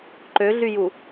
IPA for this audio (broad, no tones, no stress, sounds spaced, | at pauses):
ǃ ø ɮ y j u